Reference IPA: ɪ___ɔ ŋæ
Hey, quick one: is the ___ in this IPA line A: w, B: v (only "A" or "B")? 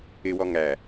A